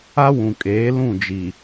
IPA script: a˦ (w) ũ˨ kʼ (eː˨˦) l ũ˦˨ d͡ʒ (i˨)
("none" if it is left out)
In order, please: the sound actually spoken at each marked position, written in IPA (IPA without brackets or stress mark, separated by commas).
w, eː˨˦, i˨